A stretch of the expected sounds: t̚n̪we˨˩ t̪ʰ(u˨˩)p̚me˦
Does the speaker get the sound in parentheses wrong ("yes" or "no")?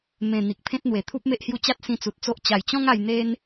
yes